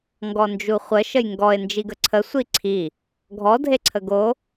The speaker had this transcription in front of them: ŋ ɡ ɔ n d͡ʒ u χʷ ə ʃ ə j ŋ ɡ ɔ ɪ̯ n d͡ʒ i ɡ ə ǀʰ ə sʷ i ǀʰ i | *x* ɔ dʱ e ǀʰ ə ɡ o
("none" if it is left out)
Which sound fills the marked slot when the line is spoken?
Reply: ɡʱ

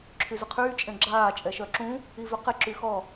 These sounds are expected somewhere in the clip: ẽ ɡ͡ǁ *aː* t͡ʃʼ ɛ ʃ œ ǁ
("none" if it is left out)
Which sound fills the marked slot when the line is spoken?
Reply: aː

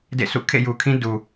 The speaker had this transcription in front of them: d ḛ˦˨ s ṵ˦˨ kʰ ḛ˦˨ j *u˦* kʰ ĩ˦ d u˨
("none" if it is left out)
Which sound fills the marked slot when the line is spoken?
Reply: u˨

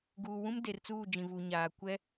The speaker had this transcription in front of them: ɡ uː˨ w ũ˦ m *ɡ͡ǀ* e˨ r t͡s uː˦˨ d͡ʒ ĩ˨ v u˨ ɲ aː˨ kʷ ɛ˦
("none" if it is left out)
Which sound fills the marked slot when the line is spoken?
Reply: d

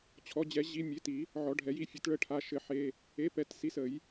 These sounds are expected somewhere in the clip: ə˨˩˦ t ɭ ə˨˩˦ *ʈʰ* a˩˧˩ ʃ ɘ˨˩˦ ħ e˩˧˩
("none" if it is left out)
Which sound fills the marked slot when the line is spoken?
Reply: ʈʰ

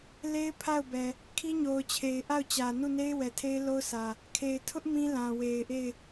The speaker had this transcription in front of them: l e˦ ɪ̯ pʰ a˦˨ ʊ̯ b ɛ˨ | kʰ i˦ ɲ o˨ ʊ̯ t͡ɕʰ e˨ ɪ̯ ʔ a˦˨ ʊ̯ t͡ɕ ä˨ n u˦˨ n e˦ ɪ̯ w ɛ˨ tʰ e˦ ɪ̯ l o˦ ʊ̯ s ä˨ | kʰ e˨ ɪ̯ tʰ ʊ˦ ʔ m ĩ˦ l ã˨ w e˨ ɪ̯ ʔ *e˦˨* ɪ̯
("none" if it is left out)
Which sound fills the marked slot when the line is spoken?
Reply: e˦˨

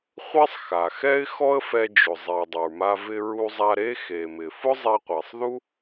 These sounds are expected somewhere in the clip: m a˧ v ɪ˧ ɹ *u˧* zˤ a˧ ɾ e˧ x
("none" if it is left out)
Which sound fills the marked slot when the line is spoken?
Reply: u˧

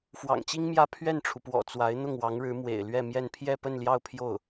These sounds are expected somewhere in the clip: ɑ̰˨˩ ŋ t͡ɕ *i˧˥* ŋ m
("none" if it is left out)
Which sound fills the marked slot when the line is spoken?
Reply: i˥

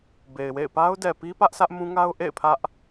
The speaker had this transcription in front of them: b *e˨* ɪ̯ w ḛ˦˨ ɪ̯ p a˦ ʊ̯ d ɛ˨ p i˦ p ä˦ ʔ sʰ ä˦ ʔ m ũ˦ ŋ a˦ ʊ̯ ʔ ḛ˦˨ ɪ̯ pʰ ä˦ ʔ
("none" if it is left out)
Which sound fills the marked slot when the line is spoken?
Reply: e˨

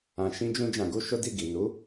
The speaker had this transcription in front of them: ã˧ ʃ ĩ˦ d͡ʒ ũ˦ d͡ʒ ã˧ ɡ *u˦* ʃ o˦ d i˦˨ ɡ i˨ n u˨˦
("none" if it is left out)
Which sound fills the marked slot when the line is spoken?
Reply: u˦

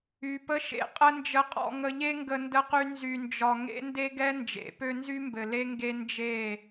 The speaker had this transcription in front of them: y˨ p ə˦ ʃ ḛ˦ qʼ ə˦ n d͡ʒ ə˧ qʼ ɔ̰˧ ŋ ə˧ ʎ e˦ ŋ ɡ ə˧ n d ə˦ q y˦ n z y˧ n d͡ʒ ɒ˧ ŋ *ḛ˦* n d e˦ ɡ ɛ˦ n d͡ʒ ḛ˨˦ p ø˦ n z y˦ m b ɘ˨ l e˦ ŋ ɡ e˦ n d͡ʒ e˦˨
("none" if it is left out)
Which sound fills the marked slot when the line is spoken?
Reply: ḛ˦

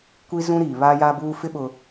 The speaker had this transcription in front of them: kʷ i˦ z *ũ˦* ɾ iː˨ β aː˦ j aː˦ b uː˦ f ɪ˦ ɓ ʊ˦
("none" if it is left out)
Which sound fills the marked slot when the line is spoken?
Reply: ũ˦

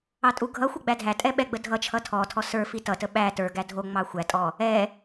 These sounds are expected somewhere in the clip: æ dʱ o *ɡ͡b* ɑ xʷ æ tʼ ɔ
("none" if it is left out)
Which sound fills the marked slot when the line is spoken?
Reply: ŋ͡m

